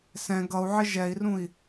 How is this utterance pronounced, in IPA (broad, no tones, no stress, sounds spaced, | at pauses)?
s ɛ̃ ɡ ʌ u̯ ʕ ɪ ʒ ɛ i̯ r ũ i̯